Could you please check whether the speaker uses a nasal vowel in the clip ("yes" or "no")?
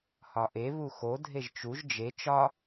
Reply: no